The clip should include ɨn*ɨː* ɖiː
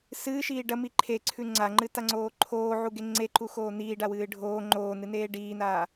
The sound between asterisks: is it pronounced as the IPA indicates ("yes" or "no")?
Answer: no